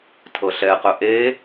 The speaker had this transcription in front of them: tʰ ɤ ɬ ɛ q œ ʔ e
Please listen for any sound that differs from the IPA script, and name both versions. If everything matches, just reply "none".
none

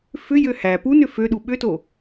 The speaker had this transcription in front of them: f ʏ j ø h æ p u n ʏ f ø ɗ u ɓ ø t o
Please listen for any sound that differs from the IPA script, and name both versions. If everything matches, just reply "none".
none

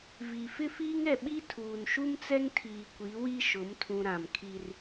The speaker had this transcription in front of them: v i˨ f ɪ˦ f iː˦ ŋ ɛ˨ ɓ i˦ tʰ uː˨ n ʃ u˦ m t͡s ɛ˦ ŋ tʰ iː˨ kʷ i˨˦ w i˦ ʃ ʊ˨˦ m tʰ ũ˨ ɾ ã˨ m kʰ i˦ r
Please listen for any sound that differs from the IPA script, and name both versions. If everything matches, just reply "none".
none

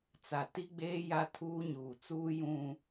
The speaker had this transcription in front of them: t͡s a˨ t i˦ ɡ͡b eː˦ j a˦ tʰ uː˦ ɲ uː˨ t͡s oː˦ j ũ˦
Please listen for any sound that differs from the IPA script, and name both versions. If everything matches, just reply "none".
oː˦ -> uː˦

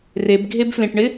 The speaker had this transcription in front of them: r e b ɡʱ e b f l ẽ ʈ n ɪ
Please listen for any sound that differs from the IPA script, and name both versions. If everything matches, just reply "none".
n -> ɳ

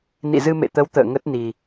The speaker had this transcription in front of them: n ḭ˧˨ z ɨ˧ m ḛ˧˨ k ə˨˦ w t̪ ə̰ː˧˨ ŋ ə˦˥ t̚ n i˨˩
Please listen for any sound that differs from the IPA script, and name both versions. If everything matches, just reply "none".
k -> t̪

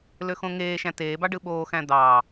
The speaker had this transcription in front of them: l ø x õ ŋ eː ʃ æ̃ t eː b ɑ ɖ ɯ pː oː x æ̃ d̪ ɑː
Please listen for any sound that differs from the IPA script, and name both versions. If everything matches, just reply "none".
pː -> ɓ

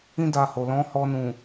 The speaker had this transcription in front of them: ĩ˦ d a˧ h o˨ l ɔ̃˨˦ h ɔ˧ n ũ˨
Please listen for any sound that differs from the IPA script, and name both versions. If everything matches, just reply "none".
none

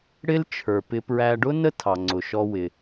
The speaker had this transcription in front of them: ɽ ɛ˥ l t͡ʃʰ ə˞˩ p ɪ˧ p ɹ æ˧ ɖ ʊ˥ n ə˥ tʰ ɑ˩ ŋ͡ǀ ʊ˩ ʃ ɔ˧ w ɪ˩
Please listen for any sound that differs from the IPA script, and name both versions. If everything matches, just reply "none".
ɛ˥ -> ɪ˥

